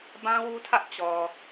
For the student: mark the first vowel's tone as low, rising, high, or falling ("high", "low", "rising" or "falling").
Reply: high